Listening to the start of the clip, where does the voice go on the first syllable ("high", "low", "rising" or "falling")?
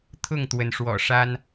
falling